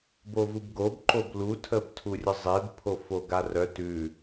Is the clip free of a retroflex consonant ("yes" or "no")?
yes